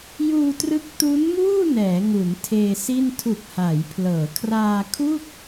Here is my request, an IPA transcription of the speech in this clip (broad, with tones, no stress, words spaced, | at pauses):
juː˧trɯ˦˥k̚ tu˦˥nmuː˥˩ nɛː˩˦ŋu˩˦n tʰeː˧si˥˩n tʰu˨˩k̚ haː˩˦jpʰlɤː˩˦ kʰraː˧kʰu˥˩k̚